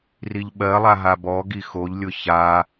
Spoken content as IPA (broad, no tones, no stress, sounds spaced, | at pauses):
r i ʎ ɓ ɜ lˠ a ɦ a b ɔ ɡ i x o ʎ lʲ ʊ ç a